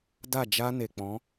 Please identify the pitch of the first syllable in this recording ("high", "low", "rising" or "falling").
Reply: falling